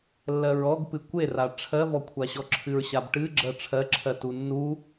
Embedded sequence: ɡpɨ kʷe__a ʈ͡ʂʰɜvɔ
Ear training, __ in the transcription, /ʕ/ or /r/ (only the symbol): r